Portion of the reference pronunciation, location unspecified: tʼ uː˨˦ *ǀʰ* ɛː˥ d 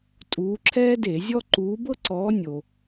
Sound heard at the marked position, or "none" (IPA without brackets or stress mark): ǁʰ